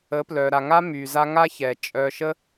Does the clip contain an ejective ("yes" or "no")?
yes